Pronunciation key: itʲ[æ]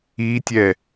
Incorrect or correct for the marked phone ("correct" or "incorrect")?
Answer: incorrect